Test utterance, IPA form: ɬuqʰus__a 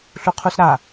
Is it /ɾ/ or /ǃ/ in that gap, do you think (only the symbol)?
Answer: ɾ